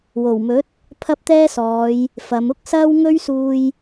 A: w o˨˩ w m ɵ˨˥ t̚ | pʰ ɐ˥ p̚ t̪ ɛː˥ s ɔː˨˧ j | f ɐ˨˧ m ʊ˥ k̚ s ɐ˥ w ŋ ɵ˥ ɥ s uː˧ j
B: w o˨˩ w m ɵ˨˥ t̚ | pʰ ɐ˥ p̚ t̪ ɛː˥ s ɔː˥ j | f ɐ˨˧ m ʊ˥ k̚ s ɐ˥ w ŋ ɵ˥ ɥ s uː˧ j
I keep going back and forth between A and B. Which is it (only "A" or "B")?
A